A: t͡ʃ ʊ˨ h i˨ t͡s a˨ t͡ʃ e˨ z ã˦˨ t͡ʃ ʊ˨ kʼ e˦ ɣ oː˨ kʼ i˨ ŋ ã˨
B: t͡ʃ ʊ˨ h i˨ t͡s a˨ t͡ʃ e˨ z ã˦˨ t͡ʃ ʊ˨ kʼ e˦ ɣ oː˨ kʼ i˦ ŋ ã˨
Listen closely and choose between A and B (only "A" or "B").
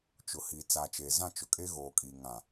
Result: A